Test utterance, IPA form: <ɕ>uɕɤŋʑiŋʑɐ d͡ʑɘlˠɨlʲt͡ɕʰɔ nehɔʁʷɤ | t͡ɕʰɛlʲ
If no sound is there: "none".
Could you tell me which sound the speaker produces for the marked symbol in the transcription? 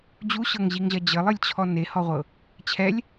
d͡ʑ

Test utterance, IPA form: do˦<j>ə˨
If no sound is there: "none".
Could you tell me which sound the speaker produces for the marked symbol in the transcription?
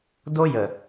j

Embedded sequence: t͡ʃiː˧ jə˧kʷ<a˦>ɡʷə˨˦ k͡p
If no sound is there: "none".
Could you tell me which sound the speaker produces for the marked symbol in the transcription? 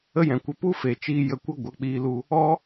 ə˦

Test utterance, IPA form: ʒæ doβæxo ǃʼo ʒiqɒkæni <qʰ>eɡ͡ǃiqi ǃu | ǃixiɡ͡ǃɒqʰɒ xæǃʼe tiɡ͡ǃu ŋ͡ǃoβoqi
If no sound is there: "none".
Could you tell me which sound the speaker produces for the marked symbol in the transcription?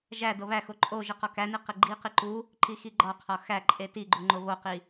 q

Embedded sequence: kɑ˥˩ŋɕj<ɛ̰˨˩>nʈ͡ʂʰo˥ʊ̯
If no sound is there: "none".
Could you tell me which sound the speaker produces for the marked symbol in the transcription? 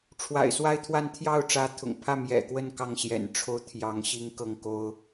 ɛ̰˨˩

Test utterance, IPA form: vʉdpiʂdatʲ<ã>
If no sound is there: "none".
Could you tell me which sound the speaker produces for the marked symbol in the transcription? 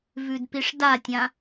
ã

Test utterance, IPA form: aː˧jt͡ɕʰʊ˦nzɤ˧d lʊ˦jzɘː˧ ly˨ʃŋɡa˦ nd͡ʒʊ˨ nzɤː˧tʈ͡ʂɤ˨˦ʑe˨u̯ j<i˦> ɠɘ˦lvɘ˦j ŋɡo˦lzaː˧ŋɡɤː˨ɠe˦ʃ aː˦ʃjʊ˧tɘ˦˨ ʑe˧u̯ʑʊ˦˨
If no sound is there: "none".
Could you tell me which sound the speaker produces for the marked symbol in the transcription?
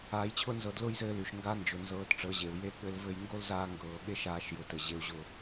e˦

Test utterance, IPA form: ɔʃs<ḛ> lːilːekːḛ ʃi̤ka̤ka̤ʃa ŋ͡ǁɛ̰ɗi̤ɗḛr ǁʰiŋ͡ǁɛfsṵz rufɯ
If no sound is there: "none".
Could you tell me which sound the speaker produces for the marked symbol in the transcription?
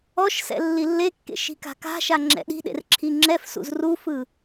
ɛ̰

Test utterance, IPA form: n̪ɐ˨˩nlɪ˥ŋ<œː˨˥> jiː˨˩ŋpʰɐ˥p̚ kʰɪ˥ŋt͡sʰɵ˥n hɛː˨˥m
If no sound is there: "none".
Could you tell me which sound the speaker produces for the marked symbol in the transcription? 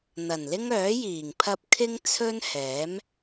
œː˨˥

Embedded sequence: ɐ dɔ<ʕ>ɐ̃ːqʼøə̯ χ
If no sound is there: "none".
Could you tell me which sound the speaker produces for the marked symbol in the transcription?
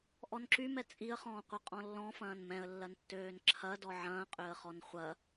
ʕ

